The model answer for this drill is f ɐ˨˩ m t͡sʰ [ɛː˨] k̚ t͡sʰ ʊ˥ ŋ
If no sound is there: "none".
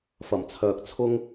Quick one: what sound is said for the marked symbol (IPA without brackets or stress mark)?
œː˨